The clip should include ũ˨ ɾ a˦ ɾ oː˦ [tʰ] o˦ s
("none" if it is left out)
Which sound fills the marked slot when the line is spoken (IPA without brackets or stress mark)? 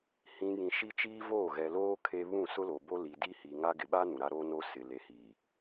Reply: n